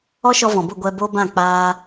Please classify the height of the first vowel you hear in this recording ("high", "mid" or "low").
mid